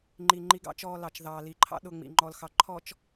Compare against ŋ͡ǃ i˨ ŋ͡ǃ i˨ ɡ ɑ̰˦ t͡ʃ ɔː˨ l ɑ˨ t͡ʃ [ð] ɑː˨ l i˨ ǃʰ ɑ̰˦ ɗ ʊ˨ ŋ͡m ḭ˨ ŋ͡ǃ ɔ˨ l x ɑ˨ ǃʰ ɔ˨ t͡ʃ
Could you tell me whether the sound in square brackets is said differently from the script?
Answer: no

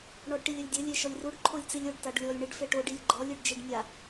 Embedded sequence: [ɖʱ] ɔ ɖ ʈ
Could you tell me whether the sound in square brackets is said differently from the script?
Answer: yes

